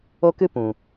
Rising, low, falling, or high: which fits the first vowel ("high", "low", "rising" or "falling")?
high